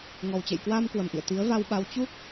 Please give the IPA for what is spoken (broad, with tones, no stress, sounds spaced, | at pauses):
ŋ ɔ˨˩ w t͡ɕ ḛ˧˨ j k w aː˧ m k w ə˨˩ m ʔ ḭ˧˨ ə̯ t̪ i˨˦ ə̯ v a˧ w ɓ a˨˦ w t͡ɕ u˦˥ k̚